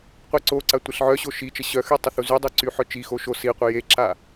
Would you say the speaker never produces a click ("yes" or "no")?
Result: no